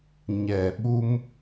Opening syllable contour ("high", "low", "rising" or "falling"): low